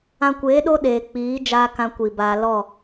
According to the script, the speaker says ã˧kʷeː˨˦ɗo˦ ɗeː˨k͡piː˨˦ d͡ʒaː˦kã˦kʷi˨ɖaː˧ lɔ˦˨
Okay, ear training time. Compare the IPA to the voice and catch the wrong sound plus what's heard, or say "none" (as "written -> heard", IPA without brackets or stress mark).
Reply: ɖ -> b